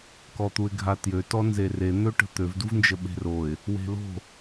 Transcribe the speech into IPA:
k ɔ t̪ u ɪ̯ ɡʱ a t j ø t ɔ n z e r e n̪ ø ʈ ə̤ t̪ ø v d u v n d͡ʒ ə ɓ e̤ r o ɪ̯ | w e̤ l o̤

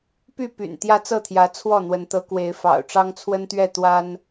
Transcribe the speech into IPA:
p y˥˨ p y̰˨˩ n t̪ j ä˦ t͡s ɤ˥˨ t̪ʰ j ä˨˦ t͡sʰ w ɔ˥˨ n̪ w ə˨˦ n t̪ ɤ˨˦ k w e˨˦ ɪ̯ f ɑ̰˨˩ ʊ̯ ʈ͡ʂ ɑ˦ ŋ t͡sʰ w ə˦ n t̪ ɥ ɛ˥˨ t̪ w a˦ n

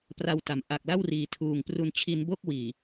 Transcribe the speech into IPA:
p r a˧ w t a˩˦ m ʔ a˨˩ k̚ l a˥˩ w r iː˨˩ tʰ uː˨˩ ŋ p r u˧ n t͡ɕʰ i˧ n b o˥˩ k̚ w iː˨˩

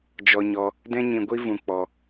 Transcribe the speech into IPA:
d͡ʒ ɔ˧ ɲ ɔ˧ | d ɛ̃˦ ɲ ĩ˧ ɡʷ i˦ v ũ˧ k͡p ɔ˧

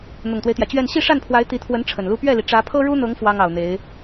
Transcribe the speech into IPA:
n̪ ʊ˨˩ ŋ t̪ w e˦ ɪ̯ t̪ j ä˩ t͡ɕ ɥ ɛ˥˧ n ɕ i˥˧ ʂ a˥˩ n pʰ w a˧˥ ɪ̯ t̪ i˧˥ t̪ʰ w ə˧˥ n ʈ͡ʂʰ ə˨˩ n l u˥ p ɥ ɛ˥˩ l i˩ ʈ͡ʂ ä˧˥ pʰ ɤ˥ ɻ u˥ n̪ ɤ˧˥ ŋ f w ɑ˥ ŋ ɑ˨˩ ʊ̯ n̪ e˧˥ ɪ̯

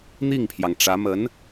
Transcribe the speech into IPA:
n̪ i˥˩ ŋ pʰ j ɑ˩ ŋ ʈ͡ʂ ä˧˥ m ə˧˥ n

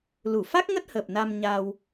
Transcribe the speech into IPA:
l u˧˩ f a˦˥ k̚ ŋ ə˦˥ t̚ h əː˨˩ p̚ n a˧ m ɲ a˧ w

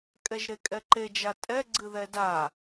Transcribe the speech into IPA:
kʼ ɛ ʒ ɾ e kʼ ɛ ǃ e d͡ʒ a tʼ ɛ ɡ͡ǀ ɨ ð ɛ d a

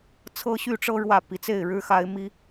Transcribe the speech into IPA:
t͡sʰ ɤ˦ ɕ y˥˨ ʈ͡ʂ ɤ˦ ɻ w ä˥˨ p i˨˦ t͡s e˥˨ ɪ̯ ɻ ɻ̩˦ x a˦ ɪ̯ m i˦

